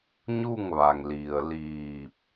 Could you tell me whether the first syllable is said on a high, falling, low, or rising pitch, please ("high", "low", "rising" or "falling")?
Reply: falling